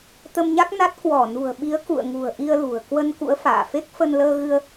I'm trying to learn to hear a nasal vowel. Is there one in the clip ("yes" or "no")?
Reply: no